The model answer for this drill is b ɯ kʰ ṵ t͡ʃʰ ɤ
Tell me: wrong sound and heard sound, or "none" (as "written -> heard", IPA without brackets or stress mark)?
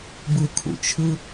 ɤ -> ɯ